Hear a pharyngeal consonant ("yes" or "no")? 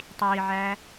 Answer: yes